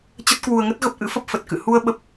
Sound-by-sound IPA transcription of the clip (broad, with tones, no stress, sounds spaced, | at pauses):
t͡ɕ ə˦˥ t̚ k w u˧ ə̯ ŋ ə˦˥ t̚ ɣ ə˦˥ p̚ ʔ ɨ̰˧˥ f ə˦˥ p̚ f ə˨˩ t̚ k ɨ̰˧˨ h u˧ ə̯ ɓ ə˦˥ p̚